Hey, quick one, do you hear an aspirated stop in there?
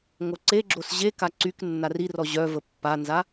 no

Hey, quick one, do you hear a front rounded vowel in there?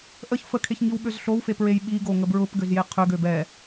yes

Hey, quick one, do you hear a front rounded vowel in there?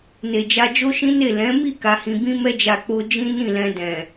no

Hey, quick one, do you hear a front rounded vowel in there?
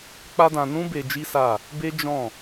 no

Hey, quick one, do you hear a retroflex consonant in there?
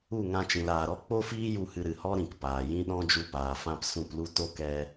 no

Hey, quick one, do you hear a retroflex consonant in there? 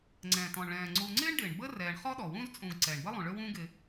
yes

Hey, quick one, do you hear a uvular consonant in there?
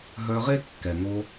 yes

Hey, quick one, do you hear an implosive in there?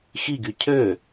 no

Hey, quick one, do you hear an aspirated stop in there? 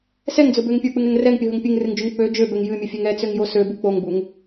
no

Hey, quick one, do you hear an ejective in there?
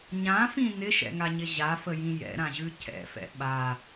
no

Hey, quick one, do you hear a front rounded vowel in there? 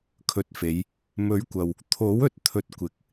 no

